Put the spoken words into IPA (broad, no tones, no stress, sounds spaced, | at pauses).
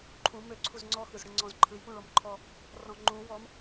ǃʰ ũ m ø ǀʰ u z ŋ͡ǀ ɔ x ɯ z ɽ ɯ ŋ͡ǀ ɔ̃ z ǃʰ ɯ j p ũ ɭ ɔ m ǃʰ ɔ | r ɔ̃ ŋ͡ǃ ũ w ɔ m